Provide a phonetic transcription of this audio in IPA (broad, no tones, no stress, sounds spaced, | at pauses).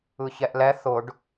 ɯ ç ɛ ʔ l ɛ θ ʊ ɖ